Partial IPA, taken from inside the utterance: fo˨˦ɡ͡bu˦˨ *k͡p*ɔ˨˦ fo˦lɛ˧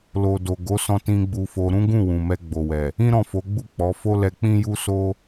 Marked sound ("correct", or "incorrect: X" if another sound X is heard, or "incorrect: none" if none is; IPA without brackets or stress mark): correct